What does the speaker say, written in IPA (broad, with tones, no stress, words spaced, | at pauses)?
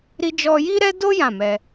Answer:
ɾi˧d͡ʒɔ˧ji˦ ɾɛ˦do˦ jã˦˨mɛ˧